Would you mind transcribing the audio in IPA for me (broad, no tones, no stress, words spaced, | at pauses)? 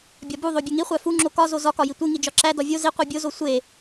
bʲɒbuðˤo bʲeŋiχʷæ fuŋ͡ǁo kɒzo zɒkɒji tʷi ŋid͡ʒɒǁæ dɒvʲo zi qʷibʲozo sʷe